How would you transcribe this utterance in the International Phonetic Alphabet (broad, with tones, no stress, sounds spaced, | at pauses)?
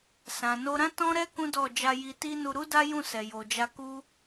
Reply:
s ã˨ n o˧ ɾ ã˦ t ɔ̃˦ ɾ ɛ˦ k ũ˦ d ɔ˦˨ d͡ʒ a˧ j i˧ t i˦ n u˧ ɾ u˦ d a˦ j ũ˦˨ s ɛ˨ j o˨ d͡ʒ a˧ k u˦